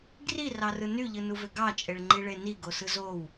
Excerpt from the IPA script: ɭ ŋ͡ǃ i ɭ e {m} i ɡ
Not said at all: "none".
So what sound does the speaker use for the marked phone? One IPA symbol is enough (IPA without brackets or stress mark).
n